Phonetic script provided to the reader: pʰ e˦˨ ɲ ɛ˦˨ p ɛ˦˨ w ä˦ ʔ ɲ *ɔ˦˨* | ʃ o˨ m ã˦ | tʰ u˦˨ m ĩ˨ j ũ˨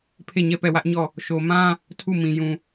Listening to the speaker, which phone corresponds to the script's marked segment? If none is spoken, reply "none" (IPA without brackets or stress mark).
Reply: ɔ˦˨